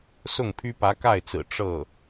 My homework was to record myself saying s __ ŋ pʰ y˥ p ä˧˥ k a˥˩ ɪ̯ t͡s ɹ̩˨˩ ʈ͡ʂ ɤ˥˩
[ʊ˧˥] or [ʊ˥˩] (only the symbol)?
ʊ˥˩